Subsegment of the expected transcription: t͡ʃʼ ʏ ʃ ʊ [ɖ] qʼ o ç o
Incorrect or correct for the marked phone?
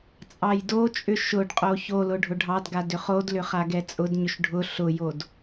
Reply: correct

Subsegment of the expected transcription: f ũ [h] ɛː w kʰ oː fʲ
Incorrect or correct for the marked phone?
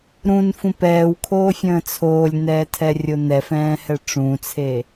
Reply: incorrect: p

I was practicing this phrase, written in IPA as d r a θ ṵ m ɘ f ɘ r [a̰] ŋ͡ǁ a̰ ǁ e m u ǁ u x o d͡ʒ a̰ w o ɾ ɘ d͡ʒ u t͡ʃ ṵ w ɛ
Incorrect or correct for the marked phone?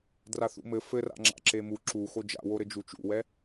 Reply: correct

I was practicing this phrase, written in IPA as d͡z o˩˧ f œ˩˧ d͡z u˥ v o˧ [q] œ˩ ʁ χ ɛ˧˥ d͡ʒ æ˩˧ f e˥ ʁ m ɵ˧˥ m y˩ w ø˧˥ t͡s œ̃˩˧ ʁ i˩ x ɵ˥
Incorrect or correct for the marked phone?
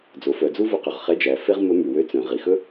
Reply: correct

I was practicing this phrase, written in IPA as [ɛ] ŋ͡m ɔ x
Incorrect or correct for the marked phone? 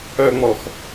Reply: incorrect: œ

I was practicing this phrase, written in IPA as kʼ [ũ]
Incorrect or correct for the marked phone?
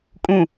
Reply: correct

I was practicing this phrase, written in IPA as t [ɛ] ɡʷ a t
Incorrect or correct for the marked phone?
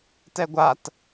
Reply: correct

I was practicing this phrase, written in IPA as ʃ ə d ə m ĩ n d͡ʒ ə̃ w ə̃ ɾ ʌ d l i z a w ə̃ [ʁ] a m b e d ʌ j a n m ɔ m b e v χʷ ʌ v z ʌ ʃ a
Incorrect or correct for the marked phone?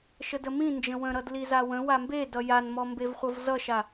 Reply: incorrect: w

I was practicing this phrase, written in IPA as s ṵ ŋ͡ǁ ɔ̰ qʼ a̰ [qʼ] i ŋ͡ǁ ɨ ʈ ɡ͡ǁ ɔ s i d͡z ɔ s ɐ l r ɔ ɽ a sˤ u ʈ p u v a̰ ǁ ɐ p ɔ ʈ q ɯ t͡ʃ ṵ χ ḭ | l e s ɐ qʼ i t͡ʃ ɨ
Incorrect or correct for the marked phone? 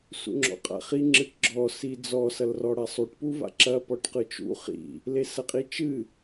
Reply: incorrect: χ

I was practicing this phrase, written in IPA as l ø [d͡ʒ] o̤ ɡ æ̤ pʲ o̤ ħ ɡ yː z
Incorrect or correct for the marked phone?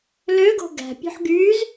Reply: incorrect: ɡ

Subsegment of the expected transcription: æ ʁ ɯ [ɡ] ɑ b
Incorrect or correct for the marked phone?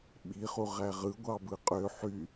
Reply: incorrect: ɡʷ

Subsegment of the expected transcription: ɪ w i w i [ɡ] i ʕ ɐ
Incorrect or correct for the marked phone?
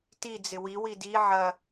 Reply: incorrect: d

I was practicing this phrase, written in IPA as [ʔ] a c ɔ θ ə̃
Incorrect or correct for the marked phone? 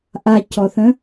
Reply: correct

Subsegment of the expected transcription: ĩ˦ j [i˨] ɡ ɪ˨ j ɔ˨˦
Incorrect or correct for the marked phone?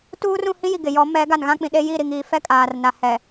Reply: correct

